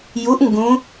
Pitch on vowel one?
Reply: rising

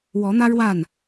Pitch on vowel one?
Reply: rising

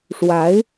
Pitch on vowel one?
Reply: rising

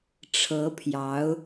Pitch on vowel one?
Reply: rising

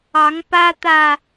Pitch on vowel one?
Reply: rising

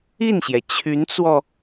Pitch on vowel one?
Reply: falling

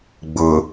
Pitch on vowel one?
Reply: low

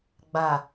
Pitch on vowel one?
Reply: low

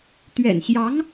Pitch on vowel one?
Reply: low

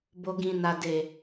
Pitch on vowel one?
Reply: low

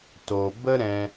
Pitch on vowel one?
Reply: low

